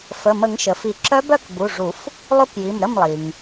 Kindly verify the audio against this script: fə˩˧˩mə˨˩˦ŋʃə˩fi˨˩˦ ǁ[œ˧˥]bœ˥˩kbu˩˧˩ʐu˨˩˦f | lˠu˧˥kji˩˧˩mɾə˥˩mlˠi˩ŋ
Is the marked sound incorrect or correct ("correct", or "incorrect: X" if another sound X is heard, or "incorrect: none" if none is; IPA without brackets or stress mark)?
correct